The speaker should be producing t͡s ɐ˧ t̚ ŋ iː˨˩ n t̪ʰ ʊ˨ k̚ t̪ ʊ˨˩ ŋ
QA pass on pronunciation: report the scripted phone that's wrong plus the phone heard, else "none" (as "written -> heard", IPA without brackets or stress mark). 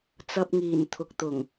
t̚ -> p̚